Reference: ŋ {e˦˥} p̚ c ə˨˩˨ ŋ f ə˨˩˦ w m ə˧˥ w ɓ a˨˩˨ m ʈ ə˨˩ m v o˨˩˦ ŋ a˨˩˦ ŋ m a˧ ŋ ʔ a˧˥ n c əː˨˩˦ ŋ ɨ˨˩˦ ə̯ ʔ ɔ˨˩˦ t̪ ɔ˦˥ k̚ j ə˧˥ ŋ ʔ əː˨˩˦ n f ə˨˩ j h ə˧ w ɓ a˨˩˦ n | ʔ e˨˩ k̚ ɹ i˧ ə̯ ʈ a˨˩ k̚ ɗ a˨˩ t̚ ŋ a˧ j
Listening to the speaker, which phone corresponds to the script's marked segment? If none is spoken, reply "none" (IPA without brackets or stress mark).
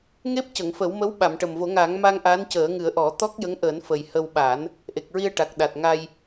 e˦˥